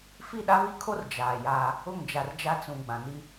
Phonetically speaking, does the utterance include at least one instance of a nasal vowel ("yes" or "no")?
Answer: yes